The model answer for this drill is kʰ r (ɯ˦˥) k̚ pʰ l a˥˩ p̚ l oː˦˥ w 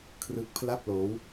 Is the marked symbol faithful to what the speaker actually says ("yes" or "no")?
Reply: yes